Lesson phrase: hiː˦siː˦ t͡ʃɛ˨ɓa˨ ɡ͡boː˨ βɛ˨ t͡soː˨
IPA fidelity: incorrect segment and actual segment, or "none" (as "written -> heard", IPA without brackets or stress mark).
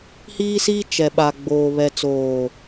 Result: none